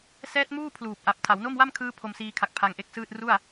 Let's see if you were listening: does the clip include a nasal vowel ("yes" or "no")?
no